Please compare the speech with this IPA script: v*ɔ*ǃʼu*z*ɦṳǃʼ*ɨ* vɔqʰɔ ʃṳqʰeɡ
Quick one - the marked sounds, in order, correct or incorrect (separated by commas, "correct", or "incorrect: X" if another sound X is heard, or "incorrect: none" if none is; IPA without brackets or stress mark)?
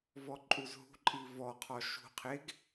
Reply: correct, correct, incorrect: i